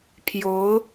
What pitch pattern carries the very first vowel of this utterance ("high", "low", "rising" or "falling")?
rising